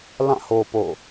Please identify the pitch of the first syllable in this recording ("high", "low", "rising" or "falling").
falling